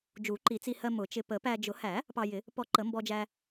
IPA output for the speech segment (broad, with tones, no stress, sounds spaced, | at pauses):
d͡ʒ u˨˩˦ ǃ i˨˩˦ t͡s i˧ h ɜ˧ m ʊ˨˩˦ t͡ʃ ɪ˧ p ə˨˩˦ p æ˧ d͡ʒ ʊ˨˩˦ h æ˨˩˦ | p ɑ˧ j ɪ˨˩˦ | p ɔ˧ ǃ ə˨˩˦ m b ɔ˧ d͡ʒ æ˧